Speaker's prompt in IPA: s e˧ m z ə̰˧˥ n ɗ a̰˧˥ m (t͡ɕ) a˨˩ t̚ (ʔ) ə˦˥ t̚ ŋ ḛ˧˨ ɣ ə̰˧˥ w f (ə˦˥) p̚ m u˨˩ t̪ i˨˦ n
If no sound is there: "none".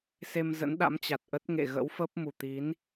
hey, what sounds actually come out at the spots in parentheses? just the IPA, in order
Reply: t͡ɕ, ʔ, ə˦˥

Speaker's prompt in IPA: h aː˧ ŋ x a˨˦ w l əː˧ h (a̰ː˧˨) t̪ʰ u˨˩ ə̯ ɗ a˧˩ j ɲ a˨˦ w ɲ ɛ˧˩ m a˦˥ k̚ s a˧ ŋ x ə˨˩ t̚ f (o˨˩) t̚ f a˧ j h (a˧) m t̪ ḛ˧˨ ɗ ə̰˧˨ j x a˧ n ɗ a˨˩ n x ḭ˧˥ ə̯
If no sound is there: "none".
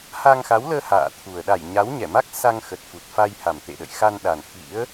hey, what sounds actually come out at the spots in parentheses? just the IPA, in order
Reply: a̰ː˧˨, u˨˩, a˨˩

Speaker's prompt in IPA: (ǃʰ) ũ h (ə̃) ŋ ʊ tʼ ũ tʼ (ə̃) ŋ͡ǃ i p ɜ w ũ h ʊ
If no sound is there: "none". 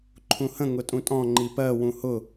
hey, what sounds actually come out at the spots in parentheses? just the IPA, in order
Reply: ǃʰ, ə̃, ɔ̃

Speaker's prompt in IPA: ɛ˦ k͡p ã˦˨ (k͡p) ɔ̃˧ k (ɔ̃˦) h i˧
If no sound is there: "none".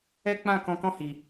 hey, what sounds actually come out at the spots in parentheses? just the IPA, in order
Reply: k, ɔ̃˦

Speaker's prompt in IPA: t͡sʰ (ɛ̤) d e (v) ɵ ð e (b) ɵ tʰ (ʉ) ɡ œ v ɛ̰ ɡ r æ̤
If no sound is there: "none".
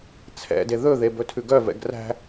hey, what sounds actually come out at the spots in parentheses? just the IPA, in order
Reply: ɛ̰, ð, b, ʉ

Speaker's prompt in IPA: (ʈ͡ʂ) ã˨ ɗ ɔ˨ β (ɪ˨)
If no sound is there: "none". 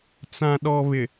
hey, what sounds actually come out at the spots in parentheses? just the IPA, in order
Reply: t͡s, ɪ˨

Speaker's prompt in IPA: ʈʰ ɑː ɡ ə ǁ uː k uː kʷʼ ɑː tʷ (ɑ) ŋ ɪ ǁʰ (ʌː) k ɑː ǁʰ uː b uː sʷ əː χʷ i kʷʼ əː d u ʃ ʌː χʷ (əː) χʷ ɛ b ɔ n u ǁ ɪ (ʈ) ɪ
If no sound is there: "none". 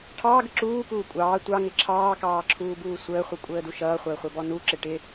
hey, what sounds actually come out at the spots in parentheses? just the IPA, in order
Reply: ɑ, ɑː, əː, ʈ

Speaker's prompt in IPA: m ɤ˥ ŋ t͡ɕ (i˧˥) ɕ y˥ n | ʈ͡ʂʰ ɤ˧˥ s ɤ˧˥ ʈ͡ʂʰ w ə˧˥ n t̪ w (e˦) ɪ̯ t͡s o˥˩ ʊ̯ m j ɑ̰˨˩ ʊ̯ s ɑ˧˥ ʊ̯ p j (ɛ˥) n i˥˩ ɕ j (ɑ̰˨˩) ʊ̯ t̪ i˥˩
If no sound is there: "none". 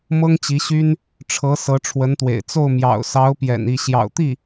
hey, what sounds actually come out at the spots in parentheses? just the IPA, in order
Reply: i˧˥, ḛ˨˩, ɛ̰˨˩, ɑ̰˨˩

